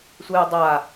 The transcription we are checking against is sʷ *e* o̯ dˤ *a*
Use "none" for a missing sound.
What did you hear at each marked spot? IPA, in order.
e, a

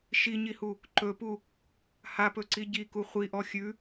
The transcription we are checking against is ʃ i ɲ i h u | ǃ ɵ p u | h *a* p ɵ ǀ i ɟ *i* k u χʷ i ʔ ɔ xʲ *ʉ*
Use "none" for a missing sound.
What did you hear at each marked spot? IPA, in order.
a, i, ʉ

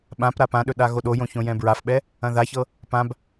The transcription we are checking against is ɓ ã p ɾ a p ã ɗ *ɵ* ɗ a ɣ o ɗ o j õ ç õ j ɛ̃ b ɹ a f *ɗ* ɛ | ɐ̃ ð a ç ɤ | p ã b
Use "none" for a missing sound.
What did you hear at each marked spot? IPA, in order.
ɵ, ɓ

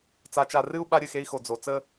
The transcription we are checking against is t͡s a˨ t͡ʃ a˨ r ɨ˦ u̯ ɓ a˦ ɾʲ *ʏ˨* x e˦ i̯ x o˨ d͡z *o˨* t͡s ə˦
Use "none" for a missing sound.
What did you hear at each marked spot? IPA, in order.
ɨ˨, o˨

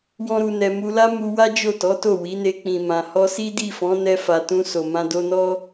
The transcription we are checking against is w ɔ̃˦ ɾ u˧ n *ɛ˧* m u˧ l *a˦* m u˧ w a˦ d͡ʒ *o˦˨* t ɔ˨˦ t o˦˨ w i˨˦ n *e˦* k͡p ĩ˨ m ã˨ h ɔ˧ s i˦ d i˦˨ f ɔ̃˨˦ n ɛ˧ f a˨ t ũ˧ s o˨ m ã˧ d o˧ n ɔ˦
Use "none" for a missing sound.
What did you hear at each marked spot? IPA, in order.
ɛ˧, a˦, o˦˨, e˧

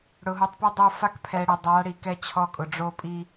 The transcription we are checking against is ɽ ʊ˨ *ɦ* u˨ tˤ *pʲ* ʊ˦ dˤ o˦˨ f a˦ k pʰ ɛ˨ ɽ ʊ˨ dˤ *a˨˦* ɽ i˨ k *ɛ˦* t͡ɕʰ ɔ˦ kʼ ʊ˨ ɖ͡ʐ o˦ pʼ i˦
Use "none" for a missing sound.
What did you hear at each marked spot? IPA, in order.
ɦ, p, a˨˦, ɛ˦

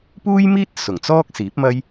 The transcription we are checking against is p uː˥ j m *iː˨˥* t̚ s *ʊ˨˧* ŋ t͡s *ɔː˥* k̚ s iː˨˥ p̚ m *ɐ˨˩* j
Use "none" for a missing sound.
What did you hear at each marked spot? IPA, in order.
iː˥, ʊ˨˩, ɔː˥, ɐ˥

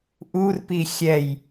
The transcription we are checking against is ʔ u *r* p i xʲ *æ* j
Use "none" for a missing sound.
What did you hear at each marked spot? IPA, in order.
r, ɛ

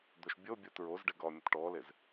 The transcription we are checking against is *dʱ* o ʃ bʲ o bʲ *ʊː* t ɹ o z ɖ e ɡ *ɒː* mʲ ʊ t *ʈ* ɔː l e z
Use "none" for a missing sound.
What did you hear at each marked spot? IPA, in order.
d̪, ʊː, ɒː, ʈ

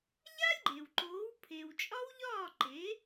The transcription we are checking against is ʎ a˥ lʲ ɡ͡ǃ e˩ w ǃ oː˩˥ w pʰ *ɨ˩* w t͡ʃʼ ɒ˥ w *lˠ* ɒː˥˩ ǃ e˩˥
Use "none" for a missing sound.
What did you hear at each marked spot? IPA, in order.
e˩, ʎ

